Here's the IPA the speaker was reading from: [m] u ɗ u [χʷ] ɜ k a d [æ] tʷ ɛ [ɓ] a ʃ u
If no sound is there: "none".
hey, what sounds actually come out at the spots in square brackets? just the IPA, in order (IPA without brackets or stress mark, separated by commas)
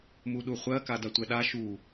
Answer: m, χʷ, a, ɗ